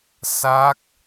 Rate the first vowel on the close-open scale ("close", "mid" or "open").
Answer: open